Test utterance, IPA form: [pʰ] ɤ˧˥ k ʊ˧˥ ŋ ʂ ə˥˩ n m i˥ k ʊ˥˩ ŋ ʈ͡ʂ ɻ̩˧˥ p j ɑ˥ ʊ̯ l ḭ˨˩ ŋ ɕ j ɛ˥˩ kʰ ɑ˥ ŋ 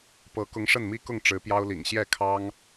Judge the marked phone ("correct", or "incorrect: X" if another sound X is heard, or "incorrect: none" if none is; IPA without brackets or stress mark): incorrect: p